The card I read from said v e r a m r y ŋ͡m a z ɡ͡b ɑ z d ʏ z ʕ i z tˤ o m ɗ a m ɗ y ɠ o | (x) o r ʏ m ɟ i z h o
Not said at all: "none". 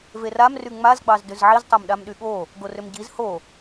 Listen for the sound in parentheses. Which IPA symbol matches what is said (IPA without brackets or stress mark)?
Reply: ɡ